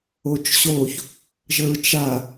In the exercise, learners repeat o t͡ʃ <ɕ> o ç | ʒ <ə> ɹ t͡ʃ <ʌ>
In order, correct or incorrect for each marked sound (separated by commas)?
correct, correct, incorrect